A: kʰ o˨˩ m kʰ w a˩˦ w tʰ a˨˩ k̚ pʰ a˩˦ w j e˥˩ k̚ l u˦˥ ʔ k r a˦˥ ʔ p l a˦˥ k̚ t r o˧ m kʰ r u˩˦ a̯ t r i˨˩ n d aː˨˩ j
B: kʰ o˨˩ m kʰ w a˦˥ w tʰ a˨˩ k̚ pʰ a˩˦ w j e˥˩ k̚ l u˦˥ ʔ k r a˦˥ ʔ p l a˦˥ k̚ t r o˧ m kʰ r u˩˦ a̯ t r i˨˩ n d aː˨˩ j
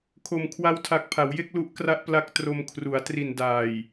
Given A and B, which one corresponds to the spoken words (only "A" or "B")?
B